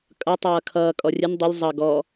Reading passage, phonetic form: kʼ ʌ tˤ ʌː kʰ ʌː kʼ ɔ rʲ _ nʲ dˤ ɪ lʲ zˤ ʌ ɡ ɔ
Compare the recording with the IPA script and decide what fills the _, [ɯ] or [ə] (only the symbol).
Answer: ə